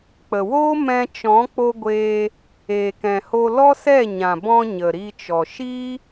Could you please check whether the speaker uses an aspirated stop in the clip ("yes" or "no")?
no